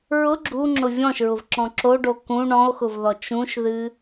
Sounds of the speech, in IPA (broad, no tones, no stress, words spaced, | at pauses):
ɹʊ ɡ͡ǁuŋ͡ǁʊ vʲɔ̃ʃɹʊvǁɔ̃ ǁoɖo kũ ɳɔ̃o̯xʊvðɔ t͡ʃũʃðɨ